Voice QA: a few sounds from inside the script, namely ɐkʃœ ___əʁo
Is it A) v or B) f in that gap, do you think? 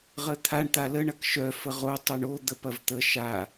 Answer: B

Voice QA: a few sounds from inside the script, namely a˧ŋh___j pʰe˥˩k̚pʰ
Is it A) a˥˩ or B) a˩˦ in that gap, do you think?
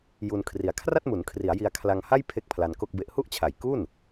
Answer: A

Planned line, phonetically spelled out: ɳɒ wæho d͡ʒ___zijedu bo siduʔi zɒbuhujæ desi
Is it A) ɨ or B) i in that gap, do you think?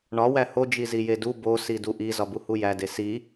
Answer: B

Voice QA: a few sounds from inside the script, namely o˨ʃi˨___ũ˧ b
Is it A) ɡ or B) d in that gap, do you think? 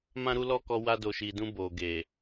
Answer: B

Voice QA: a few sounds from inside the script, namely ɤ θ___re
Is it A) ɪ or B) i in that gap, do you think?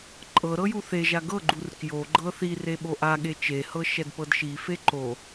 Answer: B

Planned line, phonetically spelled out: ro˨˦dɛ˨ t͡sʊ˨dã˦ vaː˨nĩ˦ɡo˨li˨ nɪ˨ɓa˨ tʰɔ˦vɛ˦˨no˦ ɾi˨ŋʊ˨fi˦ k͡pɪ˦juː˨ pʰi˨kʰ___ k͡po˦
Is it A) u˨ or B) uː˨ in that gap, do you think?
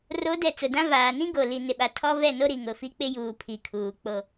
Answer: B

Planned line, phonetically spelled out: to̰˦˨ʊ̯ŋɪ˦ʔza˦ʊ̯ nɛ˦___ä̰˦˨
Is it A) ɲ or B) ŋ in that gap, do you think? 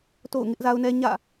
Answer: A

